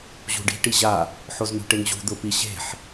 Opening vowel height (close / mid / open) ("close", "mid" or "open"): close